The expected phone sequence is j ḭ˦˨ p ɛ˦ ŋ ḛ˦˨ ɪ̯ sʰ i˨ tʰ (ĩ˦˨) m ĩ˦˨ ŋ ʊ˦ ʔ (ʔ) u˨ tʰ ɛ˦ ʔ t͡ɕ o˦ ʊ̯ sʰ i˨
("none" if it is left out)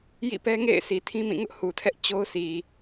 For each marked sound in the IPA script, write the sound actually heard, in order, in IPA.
ĩ˦, h

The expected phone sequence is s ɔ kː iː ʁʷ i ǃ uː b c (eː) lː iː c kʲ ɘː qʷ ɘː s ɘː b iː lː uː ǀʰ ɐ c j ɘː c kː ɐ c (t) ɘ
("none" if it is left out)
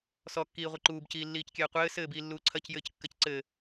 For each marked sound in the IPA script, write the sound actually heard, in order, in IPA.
iː, ǀ

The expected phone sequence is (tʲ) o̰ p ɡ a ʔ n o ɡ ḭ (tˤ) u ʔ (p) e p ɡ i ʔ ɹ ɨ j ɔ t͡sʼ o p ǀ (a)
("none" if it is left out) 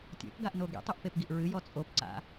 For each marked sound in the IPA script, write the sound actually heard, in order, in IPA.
tʲ, tˤ, p, a̰

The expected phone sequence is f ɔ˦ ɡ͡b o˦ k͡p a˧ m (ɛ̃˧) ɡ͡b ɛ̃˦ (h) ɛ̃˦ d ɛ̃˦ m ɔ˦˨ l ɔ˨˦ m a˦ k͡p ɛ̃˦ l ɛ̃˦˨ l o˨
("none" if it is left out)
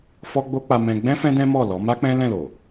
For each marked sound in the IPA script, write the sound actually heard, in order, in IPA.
ɛ̃˧, f

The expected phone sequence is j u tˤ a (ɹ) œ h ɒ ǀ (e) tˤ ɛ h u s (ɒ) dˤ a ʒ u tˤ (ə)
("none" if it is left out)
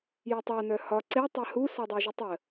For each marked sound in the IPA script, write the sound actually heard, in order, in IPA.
n, e, ɒ, ə

